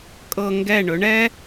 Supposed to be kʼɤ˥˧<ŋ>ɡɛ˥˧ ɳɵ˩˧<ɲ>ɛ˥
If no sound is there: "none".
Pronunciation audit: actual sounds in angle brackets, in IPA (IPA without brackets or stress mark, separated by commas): ŋ, ɳ